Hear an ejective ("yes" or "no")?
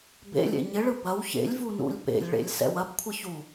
no